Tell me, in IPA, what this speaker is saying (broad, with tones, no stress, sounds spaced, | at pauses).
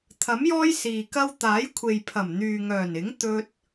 t̪ʰ ɐ˨˥ m j ɔː˥ j s iː˨ k ɐ˥ w t̪ aː˨˥ j kʷʰ e˨ j pʰ ɐ˨˩ m n̪ yː˨ ŋ œː˨˩ n ɪ˨˥ ŋ t̪ ɵ˧ t̚